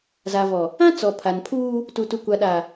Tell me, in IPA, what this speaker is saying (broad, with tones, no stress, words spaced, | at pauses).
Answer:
za˨vɔ˨ | ã˦ t͡sɔ˨ pʰa˨npʰuː˦ | tu˨tu˨kʷa˨ɗa˨